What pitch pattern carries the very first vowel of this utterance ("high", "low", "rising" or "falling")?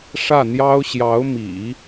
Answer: falling